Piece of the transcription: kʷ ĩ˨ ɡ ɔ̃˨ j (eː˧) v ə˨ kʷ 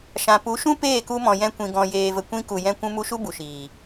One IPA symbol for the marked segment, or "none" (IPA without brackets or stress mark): eː˨